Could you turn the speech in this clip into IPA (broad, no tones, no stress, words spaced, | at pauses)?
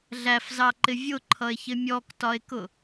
ɮæfzɑǃɪ vʲʊǃʰʌe̯çɪ mʲɔktɒe̯kʊ